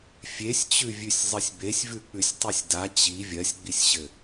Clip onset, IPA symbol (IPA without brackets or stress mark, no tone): fʲ